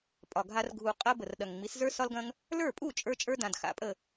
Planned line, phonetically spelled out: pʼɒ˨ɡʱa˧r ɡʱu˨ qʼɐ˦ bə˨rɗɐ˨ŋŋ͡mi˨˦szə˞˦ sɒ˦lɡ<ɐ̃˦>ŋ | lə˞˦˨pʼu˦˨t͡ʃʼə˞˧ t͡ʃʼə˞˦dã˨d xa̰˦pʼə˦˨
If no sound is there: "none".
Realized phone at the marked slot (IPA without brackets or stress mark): ɐ̃˦